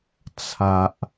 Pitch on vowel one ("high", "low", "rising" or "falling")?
low